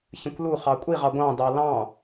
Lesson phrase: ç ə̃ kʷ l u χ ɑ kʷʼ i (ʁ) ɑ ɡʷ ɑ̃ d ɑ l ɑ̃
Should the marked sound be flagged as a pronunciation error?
no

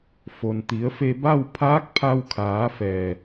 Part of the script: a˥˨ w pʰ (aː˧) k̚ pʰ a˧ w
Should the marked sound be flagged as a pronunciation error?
yes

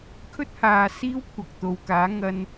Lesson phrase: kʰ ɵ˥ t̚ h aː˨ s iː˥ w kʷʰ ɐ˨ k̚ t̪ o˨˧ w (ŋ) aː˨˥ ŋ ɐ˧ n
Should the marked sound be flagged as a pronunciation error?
yes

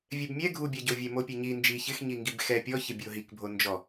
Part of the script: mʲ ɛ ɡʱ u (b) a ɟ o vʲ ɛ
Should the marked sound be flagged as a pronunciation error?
yes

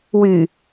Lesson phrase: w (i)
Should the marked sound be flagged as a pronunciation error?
yes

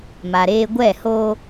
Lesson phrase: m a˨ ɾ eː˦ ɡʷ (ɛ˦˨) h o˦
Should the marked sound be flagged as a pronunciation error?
no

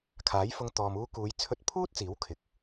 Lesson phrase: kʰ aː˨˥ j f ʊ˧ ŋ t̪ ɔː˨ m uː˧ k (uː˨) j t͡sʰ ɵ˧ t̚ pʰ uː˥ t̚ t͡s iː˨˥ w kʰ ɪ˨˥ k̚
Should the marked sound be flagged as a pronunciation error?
yes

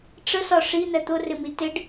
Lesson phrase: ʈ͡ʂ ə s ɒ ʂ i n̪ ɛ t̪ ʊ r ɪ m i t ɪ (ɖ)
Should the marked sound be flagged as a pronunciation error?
no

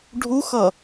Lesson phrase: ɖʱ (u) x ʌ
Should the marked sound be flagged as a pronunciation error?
no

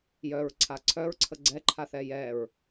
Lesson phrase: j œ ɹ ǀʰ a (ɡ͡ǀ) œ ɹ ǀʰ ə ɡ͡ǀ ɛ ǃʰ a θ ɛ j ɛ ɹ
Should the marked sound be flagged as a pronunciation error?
yes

